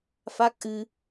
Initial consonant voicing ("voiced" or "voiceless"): voiceless